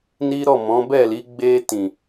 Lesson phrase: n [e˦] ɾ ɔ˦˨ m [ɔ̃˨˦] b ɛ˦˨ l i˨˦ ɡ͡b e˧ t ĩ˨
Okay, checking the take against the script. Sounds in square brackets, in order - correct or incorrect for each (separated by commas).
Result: incorrect, correct